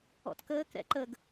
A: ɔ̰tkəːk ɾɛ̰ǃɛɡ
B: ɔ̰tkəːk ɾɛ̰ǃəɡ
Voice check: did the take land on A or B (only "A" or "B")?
B